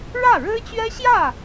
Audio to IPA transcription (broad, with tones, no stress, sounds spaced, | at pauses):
ɻ ä˥˩ ɻ ɻ̩˥ t͡ɕ ɥ ɛ˥ ɕ j ä˥˩